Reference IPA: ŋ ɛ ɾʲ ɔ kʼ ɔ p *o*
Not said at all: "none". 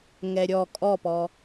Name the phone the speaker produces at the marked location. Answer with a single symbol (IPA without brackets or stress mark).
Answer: ɔ